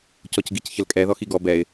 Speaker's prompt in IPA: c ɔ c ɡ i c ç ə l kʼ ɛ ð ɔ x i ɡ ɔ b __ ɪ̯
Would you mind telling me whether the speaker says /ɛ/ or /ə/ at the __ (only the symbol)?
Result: ɛ